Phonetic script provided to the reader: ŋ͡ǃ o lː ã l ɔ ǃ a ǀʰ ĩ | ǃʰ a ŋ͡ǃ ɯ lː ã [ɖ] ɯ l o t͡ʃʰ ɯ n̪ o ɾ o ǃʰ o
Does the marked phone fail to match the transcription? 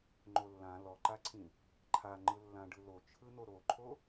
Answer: no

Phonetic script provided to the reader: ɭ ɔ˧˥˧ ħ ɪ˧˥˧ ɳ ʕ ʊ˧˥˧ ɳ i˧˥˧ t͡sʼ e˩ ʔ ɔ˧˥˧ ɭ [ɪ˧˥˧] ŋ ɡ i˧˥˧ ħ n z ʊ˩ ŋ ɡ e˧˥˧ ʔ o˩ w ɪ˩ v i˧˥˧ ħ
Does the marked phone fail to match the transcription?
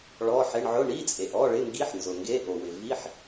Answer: no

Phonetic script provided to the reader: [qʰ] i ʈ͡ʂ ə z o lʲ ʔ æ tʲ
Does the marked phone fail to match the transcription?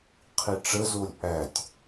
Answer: no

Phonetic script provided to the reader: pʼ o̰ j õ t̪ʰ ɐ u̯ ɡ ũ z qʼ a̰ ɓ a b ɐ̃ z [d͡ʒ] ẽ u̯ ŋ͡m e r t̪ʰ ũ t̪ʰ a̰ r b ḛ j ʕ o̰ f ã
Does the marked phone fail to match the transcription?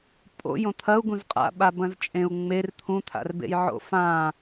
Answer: yes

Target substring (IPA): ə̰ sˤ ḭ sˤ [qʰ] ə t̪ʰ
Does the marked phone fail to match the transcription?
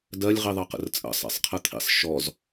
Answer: no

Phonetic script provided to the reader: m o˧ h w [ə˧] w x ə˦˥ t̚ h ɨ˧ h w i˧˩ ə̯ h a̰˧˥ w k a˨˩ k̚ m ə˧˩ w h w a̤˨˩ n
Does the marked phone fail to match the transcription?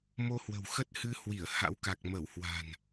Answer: yes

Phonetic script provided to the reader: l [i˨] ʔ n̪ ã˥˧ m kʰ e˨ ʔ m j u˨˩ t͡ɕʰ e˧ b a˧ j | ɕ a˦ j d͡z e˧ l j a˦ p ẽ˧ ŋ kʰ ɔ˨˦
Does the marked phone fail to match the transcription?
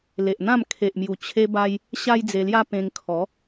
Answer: yes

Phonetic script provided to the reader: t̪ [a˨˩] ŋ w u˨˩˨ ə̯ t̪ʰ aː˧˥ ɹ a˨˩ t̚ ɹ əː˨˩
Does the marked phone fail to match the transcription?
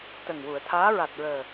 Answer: yes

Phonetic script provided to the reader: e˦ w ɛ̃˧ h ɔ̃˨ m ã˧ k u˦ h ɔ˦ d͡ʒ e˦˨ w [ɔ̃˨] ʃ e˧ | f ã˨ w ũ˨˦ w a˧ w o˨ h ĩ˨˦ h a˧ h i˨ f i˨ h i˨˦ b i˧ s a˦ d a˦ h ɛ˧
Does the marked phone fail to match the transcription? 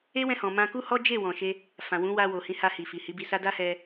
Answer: no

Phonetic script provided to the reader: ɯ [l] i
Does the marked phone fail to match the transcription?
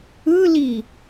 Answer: no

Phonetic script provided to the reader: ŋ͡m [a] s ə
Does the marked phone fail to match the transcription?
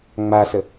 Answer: no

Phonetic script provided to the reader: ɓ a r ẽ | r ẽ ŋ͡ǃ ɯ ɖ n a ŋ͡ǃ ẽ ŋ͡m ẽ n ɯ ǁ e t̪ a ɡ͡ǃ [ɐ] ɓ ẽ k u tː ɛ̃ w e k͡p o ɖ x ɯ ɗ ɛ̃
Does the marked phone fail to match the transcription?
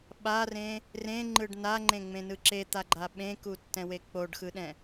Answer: yes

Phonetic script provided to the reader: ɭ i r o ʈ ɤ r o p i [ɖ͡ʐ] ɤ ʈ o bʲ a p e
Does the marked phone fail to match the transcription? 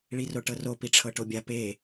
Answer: yes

